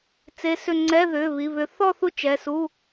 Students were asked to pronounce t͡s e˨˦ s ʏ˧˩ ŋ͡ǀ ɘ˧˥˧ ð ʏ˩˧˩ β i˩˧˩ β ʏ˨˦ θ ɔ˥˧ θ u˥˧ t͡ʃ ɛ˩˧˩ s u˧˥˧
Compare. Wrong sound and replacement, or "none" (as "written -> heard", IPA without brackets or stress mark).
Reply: ɘ˧˥˧ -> ɛ˧˥˧